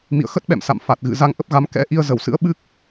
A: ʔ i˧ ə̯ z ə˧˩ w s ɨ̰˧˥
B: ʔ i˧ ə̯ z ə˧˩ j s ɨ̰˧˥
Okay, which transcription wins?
A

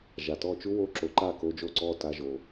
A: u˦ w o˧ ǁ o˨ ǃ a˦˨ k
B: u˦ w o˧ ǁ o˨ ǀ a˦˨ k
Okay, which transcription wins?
A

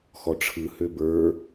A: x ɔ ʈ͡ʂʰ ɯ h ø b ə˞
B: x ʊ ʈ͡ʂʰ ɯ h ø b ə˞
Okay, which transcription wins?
A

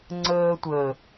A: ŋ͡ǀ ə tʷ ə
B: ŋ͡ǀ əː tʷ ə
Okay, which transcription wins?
B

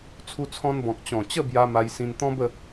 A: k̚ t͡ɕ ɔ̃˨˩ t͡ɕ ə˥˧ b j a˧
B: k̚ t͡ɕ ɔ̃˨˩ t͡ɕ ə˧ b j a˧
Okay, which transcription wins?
A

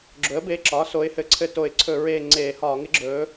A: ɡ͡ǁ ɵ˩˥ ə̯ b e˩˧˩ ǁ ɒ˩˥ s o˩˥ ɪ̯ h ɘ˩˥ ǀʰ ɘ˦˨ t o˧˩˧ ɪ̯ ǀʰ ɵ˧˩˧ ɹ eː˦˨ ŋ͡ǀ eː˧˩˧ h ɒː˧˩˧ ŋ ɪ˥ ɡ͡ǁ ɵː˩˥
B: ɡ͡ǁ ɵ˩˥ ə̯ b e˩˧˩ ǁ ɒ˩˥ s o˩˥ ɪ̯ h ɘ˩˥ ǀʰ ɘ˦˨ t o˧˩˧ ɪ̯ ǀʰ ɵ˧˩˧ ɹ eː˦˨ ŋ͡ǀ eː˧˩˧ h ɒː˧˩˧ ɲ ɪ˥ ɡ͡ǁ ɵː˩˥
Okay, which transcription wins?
A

